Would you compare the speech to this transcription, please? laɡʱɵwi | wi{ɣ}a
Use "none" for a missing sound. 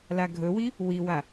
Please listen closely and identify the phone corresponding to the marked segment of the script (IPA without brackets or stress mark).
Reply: w